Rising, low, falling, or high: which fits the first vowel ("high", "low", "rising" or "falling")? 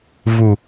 low